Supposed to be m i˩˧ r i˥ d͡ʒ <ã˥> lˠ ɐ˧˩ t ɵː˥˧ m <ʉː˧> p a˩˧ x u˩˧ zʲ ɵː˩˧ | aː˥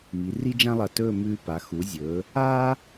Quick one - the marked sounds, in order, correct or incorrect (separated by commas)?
correct, correct